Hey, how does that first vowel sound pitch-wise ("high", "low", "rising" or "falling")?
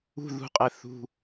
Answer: falling